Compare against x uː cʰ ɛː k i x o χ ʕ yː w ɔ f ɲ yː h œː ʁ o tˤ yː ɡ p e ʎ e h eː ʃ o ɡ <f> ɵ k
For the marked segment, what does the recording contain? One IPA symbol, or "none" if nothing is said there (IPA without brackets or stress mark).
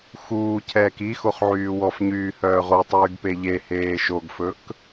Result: f